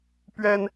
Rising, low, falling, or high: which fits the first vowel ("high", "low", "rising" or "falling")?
high